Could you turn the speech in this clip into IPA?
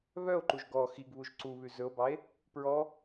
β œ o̯ ǃ u ʒ ɡ ɔ x i ɡ β u ʒ ǀ u β ʉ z ɵ o̯ b ɑ e̯ | p ɹ ɔ

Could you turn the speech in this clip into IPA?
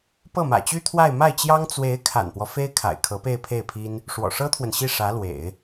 p ɤ˥˩ m ä̰˨˩ t͡ɕ y˥ t̪ʰ w a˥˧ ɪ̯ m a˥˩ ɪ̯ t͡ɕ j ɑ˥ ŋ t͡s w e˧˥ ɪ̯ kʰ a̰˨˩ n p w ɔ˦ f e˥ ɪ̯ kʰ a̰˨˩ ɪ̯ kʰ ɤ˧˥ p e˥˧ ɪ̯ pʰ e˥˩ ɪ̯ pʰ i˥ n | ʂ w ɔ̰˨˩ ʂ ɤ˥ t̪ʰ w ə˨ n ɕ i˥˩ ʂ ä˧˥ l w ḛ˨˩˦ ɪ̯

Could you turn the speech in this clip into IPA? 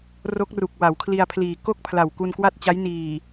r o˦˥ k̚ r u˨˩ k̚ w a˩˦ w kʰ l i˧ a̯ pʰ l iː˨˩ k o˥˩ k̚ pʰ l a˨˩ w k u˧ n k w a˥˩ t̚ t͡ɕ a˦˥ j n iː˨˩

